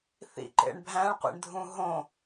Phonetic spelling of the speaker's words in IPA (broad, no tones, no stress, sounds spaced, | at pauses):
θ ḭ ǃ ḛ ɳ bʱ æ̃ ɭ qʷ ḭ ɳ dʱ ũ ɦ õ